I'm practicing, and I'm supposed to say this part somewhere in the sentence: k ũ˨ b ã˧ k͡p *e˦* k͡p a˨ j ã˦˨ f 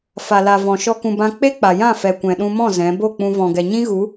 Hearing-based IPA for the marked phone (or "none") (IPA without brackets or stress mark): e˦